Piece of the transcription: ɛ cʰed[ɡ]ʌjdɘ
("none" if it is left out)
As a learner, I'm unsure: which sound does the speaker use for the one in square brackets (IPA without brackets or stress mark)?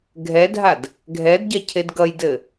ɡ